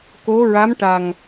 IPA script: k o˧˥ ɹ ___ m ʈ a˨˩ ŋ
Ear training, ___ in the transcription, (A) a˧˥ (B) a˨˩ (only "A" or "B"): A